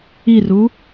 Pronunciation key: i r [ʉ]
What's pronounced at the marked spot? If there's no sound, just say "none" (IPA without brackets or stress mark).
u